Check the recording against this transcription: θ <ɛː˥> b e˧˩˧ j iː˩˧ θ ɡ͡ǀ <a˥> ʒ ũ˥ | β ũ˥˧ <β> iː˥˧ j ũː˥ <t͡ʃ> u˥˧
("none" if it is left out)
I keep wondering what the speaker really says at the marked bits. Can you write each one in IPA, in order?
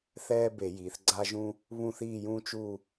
ɛː˥, a˥, θ, t͡ʃ

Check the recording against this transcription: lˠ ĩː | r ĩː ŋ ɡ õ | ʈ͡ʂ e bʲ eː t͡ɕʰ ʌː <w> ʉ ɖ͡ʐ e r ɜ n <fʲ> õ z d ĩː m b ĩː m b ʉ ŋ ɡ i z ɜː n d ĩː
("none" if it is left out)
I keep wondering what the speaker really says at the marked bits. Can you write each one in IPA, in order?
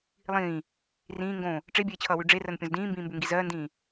w, pʲ

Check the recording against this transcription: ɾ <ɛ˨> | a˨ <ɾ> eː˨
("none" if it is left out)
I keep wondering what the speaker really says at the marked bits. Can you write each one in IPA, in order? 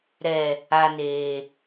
ɛ˨, n

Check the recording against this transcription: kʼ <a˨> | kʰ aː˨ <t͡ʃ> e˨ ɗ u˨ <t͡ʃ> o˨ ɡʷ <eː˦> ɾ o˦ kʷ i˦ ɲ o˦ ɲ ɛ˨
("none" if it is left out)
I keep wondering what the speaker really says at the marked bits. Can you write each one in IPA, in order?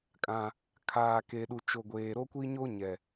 ã˨, k, t͡ʃ, eː˨

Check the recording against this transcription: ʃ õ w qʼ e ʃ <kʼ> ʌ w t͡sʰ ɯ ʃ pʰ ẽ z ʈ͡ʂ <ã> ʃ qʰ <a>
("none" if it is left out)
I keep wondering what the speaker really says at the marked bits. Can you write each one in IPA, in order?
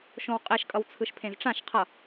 kʼ, ã, ʌ

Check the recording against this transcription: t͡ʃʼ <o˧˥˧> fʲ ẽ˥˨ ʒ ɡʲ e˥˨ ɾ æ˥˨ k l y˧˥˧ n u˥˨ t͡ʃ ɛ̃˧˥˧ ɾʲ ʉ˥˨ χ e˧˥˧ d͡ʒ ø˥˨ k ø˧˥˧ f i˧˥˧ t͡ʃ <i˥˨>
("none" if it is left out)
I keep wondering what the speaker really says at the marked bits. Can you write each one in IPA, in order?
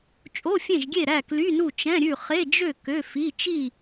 o˧˥˧, i˥˨

